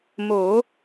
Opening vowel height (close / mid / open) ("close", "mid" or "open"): mid